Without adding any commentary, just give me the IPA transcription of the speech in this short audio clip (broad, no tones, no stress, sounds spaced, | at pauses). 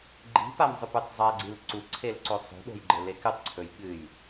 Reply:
ɡ͡ǃ i̤ p a m zˤ ɵ p ʉ tˤ zˤ a ɡ͡ǀ i l ǀ u ǀʰ e l ǀ o sˤ o̤ ɗ o̤ j ɡ͡ǃ e l e k ɨ tˤ ǀʰ ɵ j ɠ ɨ j